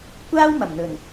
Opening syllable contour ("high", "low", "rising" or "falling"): high